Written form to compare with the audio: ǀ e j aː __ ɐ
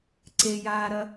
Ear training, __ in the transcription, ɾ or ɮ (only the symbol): ɾ